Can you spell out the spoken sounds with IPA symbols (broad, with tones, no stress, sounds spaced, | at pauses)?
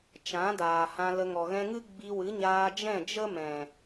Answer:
t͡ʃ ã˨˦ d aː˨ h ã˧ l ə˧ ŋ ɔ˨ ɣ ɛ̃˧ ŋ ɨ˦ ɡ͡b i˧ w ɨ˨˦ ɲ aː˧ d͡ʒ ɛ̃˦˨ d͡ʒ ə˦ m ɛ̃˨